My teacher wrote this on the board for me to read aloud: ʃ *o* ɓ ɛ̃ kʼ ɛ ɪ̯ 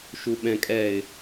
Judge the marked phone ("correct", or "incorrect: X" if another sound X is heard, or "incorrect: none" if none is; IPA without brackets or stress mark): incorrect: u